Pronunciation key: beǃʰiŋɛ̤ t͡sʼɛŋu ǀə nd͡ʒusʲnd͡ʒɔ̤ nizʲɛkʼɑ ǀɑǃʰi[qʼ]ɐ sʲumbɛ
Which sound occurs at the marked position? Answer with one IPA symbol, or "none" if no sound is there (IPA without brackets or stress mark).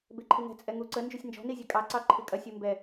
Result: kʼ